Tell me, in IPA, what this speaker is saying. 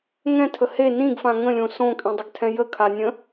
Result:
ŋ ɛ̃ tʰ ə h e n ĩ ɡ f ã ŋ ə̃ lʲ õ s õ kʼ ĩ dˤ ə ɡ tʰ ɛ̃ j ə kʰ a nʲ ə̃

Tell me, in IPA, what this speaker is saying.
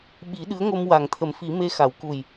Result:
ɓ i˨˩˦ ɗ ɨ˧˥ ə̯ ŋ o˧ m w a˨˩ ŋ t̪ʰ ə˨˩˦ m f i˨˩˦ m e˧ x a˨˩˦ w k u˨˩ j

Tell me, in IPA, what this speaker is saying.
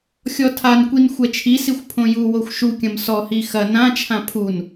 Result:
xʲ ɔ tʰ a n kʷ i n xʷ ɛ t͡ʃʰ i s i xʷ pʰ õ j u w o xʷ ʃ u kʲ ɐ̃ m s ɔ h i x ɐ n ã t͡ʃʰ ã pʰ u n

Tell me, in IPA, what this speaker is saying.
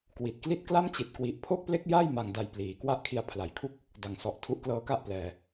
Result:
k w i˨˩ t̚ k l i˥˩ t̚ k l a˥˩ m t͡ɕ i˨˩ t̚ k w i˨˩ ʔ pʰ o˥˩ k̚ p l e˥˩ k̚ j a˥˩ j m a˨˩ ŋ d a˨˩ j p l iː˩˦ k w a˥˩ ʔ kʰ i˧ a̯ pʰ l a˩˦ j kʰ u˥˩ k̚ | d a˨˩ ŋ s ɔ˨˩ ʔ tʰ u˦˥ ʔ k l ɤː˧ k a˥˩ ʔ p l ɛː˧

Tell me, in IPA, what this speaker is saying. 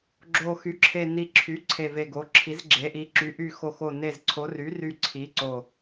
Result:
ɡ͡ǁ o˨˩ x y˩˧ ǁʰ e˨˩ n i˨˩ ǁʰ y˩˧ ǀʰ e˨˩ v e˨˩ ɡ o˩˧ ǁʰ i˩˧ z ɡ͡ǁ e˩˧ ʔ i˩˧ ǁ y˩˧ ʔ y˨˩ x o˨˩ x o˨˩ n e˨˩ z ǀʰ o˩˧ r y˩˧ r y˨˩ ǀʰ i˩˧ ǀ o˨˩

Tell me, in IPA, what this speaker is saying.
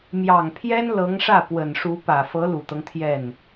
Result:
m j ɑ˨˩ ŋ pʰ j ɛ˥ n l ɤ˧˥ ŋ ʂ ä˥˩ p w ə˨˩ n ʂ u˧˥ p ä˨˩ f ɤ˧˥ l u˨˩ t̪ ɤ˦ ŋ t̪ʰ j ɛ˥˩ n

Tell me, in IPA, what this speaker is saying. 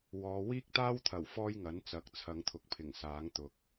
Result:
w ɔː˨˧ w iː˥ k̚ t̪ aː˥ w t̪ʰ ɐ˨˩ w f ɔː˥ j ŋ ɐ˨˥ n t͡s ɐ˨˥ k̚ t͡sʰ ɐ˨˧ ŋ t̪ʰ ʊ˨ k̚ pʰ ɪ˨˩ ŋ s aː˨˥ ŋ t̪ ʊ˨ k̚

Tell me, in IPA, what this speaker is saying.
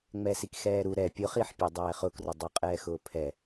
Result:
ŋ͡m ɛ s i k x ɛː ɾ u ɾ ɛ pʲ ʊ χ i ħ pʲ ɛ dˤ ɛː χ ʊ k r ʊ dˤ o qʼ ɛː x ʊː pʰ ɛ

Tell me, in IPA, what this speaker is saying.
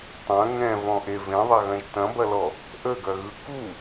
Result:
tˤ ɐ̃ ŋ ɛ̃ v ɔ̃ ʔ e v ẽ ðˤ ɐ ɣ ɐ̃ ʒ t ɐ̃ b ɐ l ɔ | ʔ ə ɡ ɐ ɣ ɯ k u

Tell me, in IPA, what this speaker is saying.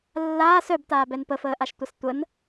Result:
lː aː s œ b t aː b ɛ n p ə f əː ʔ a ʃ tʷ ʌ s tʷ ə n

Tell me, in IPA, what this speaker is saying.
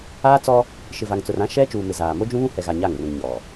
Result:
aː˦ t͡s ɔ˦ | ʃ ɪ˨ v a˨ ŋ t͡s ʊ˨ r ã˦ ʃ ɛ˦ t͡ʃ uː˨ m ɪ˨ z aː˨ m o˦ d͡ʒ ũ˦ β ũ˦ h ɛ˨ ɣ a˨ ɲ a˦˨ ŋ r ũ˨ ŋ ɲ ɔ˨

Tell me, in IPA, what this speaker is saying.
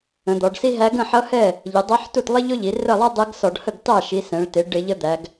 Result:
ə̃˩˧ d̪ ɔ˩˧ ɖ s i˥ ɦ æ˧˥ ɡ ə̃˥˩ ħ ʌ˧˥ h ɛ˥˩ | ʎ ɪ˩˧ dˤ ʌ˧˥ ħ t u˥˩ t lˠ ɪ˥ ʎ ʊ˥ ʎ i˩˧ r ə˥˩ lˠ æ˥ dˤ ɛ˧˥ ɡ s ɔ˧˩˧ ɖ h ə˥˩ ɡ t ɑ˥˩ ʃ i˩˧ s ɛ̃˩˧ ɭ t ɪ˩˧ ɖ ɪ˧˩˧ ʎ ə˧˥ d̪ æ˩˧ ɡ

